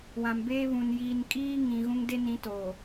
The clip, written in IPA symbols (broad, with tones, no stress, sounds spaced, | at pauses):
w ã˨ m b eː˦ β ũ˨ n j iː˨ n kʼ iː˦ ŋ ĩ˨ ɣ ũ˦ ŋ d e˦ n ĩ˨˦ t o˨